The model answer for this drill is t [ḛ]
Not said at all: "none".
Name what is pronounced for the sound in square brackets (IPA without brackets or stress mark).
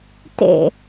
ḛ